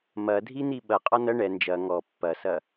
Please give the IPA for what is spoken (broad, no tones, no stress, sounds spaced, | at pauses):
m ɐ dʱ i n̪ i ɓ ɐ qʼ ɔ n ɐ ɳ ɛ n d͡ʒ ɐ ŋ ɔ pː ɐ s ɐ